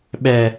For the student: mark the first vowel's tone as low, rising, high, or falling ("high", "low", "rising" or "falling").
high